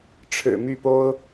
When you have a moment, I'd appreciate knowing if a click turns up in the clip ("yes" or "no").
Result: no